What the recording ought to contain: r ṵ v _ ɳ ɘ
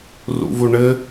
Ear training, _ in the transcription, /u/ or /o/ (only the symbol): u